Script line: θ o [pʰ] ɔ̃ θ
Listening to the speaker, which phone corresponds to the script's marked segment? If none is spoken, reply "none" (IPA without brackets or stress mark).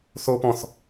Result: p